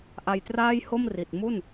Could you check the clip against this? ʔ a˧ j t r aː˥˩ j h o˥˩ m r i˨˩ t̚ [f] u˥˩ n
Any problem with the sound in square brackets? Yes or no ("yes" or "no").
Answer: yes